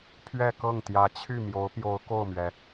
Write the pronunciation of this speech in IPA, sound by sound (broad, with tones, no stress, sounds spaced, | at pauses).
pʰ ɥ ɛ˥˧ k ɤ˥˩ ŋ t̪ j ä˧˥ t͡ɕʰ y˥˩ m j o˧˥ ʊ̯ p j o˧˥ ʊ̯ k o˥˩ ʊ̯ m ɥ ɛ˩